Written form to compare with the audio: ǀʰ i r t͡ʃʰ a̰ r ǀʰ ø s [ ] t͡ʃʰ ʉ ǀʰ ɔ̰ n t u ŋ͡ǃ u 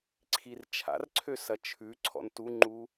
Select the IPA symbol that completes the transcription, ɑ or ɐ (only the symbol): ɐ